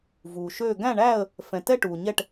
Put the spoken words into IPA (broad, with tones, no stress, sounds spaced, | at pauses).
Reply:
v uː˨ ʃ øː˥˧ ɡ æ̃˥˧ ɳ æː˥˧ ə̯ | f ɛ̃˨ t ɛ˥˧ ʈ uː˨ ɲ ɛ˥˧ ʈ